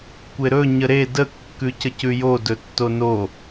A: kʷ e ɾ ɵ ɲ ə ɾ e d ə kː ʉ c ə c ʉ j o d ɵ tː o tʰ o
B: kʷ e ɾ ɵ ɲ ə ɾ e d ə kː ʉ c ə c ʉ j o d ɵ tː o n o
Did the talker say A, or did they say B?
B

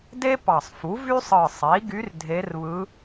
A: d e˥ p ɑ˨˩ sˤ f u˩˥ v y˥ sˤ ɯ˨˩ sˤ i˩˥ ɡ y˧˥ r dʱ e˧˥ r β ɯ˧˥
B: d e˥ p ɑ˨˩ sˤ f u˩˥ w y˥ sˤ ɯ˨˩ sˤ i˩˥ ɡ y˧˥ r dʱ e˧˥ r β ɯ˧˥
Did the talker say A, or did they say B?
A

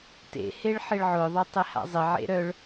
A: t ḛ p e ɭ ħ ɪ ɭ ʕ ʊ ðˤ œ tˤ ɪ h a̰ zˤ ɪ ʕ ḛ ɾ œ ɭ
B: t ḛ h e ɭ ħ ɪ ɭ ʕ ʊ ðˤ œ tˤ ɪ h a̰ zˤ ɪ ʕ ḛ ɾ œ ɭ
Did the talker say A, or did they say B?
B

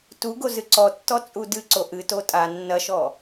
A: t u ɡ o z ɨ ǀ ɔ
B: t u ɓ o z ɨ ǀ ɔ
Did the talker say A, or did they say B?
A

